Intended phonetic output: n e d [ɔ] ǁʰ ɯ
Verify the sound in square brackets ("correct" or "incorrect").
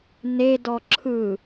correct